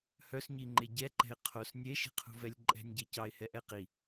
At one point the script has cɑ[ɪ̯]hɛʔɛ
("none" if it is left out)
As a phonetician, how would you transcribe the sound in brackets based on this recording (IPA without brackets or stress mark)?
ɪ̯